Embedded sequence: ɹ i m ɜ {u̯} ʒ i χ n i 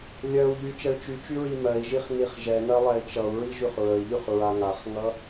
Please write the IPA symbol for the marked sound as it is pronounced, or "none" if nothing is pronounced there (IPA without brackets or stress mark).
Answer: i̯